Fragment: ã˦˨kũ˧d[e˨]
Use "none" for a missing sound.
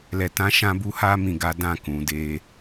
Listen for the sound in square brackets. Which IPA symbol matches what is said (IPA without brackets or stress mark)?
e˦